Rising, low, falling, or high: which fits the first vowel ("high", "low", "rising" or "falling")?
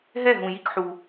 falling